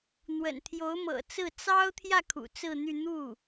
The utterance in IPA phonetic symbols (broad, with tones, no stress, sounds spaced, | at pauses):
n̪ w ə̰˨˩ n t̪ʰ j o˧˥ ʊ̯ m ɤ̰˨˩ t͡s ɹ̩˥˩ t͡s ɑ˥ ʊ̯ t̪ʰ j ä˥˩ kʰ ṵ˨˩ t͡s ɹ̩˥˧ n̪ y˥˧ n̪ u˥˩